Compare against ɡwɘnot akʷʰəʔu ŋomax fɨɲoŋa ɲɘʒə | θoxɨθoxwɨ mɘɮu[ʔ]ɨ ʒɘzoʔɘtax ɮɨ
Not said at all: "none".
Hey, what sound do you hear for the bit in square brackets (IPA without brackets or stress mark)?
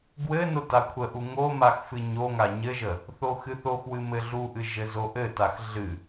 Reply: ʔ